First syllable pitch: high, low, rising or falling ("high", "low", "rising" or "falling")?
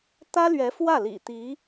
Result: high